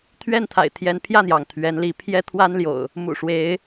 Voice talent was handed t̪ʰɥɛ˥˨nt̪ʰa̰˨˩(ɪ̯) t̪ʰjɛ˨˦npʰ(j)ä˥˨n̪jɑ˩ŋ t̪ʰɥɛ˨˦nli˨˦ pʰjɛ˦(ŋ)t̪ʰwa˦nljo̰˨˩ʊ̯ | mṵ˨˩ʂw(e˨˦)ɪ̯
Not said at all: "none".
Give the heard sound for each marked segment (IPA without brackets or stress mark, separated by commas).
ɪ̯, j, none, e˨˦